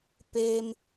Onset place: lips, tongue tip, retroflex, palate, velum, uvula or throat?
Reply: lips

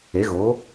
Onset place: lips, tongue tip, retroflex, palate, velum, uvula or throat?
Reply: velum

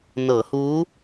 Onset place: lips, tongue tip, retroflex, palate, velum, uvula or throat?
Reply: tongue tip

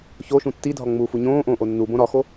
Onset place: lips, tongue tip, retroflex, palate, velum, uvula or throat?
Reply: palate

